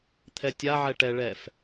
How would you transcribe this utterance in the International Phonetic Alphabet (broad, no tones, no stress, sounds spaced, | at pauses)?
t̪ʰ ɛ tʲ a ʕ ɛ ʈ ɛ ɭ ɛ f